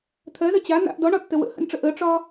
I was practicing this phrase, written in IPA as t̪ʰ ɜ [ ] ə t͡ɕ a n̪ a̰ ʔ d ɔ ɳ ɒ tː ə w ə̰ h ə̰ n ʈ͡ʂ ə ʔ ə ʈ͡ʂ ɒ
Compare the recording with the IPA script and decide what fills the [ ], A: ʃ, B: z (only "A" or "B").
B